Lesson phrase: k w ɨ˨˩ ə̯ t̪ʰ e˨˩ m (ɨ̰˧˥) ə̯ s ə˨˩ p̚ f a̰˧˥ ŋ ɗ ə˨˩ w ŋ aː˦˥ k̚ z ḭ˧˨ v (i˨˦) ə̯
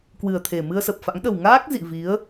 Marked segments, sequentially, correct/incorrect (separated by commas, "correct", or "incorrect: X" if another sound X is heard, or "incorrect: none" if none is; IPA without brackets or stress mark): incorrect: ɨ˧, correct